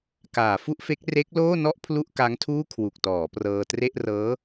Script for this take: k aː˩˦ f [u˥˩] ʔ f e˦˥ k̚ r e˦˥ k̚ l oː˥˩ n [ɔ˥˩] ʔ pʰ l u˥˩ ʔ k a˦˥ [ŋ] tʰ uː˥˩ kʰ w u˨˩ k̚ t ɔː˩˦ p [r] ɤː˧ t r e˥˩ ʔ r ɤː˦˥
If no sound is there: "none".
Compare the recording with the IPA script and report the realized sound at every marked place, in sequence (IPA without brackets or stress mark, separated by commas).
u˥˩, ɔ˥˩, ŋ, r